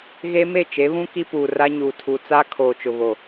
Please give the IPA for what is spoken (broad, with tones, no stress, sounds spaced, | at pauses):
ɣ e˦ m e˦˨ t͡ʃ e˨˦ β ũ˦ k i˦ p uː˨ r a˦ ɲ uː˨ tʰ u˨ t͡s a˦ kʰ oː˨ t͡ʃ ʊ˨ β o˨